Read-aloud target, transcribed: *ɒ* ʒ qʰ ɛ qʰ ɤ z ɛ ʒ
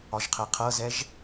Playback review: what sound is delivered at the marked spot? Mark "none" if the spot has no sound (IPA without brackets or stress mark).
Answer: ɒ